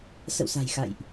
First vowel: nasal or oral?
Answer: oral